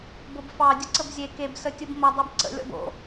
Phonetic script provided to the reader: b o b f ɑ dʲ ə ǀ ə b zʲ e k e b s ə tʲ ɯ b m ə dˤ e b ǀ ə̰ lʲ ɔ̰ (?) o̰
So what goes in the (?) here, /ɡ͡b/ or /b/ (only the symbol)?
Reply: b